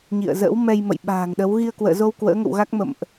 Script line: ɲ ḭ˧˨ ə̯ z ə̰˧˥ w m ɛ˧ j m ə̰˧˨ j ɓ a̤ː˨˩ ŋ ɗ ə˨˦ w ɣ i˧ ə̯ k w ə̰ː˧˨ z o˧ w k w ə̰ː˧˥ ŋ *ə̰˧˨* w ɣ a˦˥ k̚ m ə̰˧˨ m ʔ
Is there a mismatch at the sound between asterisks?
no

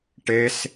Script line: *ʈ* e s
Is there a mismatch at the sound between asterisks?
no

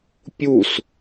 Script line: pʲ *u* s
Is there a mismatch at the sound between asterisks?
no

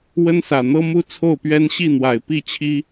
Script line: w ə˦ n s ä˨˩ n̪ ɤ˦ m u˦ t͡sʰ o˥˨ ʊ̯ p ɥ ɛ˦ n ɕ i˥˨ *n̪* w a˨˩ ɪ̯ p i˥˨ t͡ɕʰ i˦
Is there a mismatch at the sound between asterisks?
no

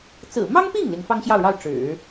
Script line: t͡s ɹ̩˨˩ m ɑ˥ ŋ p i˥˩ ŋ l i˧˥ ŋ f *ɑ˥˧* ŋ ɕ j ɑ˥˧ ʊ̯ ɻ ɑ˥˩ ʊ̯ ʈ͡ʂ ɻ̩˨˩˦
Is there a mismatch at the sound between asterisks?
yes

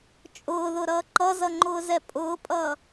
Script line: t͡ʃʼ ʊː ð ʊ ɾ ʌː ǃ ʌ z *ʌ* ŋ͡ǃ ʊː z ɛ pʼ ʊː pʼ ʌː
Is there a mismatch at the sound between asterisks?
no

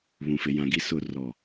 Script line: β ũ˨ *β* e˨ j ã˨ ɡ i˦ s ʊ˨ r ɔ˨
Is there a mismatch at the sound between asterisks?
yes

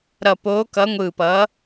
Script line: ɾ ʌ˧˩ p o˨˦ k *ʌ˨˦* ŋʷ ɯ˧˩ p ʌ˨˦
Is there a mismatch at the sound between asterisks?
no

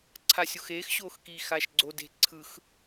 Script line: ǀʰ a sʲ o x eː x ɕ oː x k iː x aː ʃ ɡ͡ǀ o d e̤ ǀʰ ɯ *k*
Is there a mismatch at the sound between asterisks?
yes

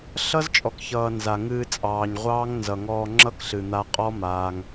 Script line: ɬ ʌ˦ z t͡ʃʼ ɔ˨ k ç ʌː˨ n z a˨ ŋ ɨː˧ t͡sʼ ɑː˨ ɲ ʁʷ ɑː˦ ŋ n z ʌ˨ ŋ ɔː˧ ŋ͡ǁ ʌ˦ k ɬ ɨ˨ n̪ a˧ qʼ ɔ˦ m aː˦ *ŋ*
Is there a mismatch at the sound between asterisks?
no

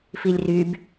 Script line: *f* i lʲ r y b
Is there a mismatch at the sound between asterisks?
no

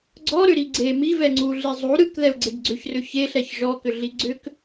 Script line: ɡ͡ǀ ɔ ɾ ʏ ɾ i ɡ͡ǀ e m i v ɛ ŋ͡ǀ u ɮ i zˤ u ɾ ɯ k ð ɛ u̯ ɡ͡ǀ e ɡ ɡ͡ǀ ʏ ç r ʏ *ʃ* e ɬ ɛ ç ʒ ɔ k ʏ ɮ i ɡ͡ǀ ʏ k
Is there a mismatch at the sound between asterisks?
yes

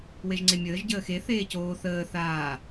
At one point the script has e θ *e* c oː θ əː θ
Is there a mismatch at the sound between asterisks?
yes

